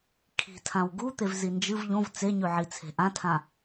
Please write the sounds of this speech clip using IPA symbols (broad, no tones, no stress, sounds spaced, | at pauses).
kʰ i̤ tʰ ã w ɡ u t̪ e v z i n d͡ʒ ɨ v ʎ õ v t͡s e ɲ ʉ ʕ i t͡sʰ e̤ ʔ ã tʰ ã